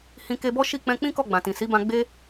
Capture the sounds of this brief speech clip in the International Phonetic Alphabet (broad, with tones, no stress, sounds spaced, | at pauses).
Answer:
h ĩ˧ k e˧ b ɔ˦ ʃ i˦˨ k͡p ɛ̃˧ k͡p ĩ˦ k ɔ˦˨ ɡ͡b ã˨ t ĩ˨ s i˨˦ b ã˧ ɡ͡b e˦